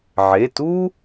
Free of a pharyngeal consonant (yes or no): no